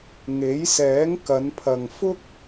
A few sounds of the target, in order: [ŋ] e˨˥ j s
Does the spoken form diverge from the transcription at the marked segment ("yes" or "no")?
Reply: no